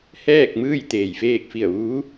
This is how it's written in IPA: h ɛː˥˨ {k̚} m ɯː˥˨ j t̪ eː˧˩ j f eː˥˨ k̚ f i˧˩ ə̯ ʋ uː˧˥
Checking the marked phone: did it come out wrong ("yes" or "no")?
no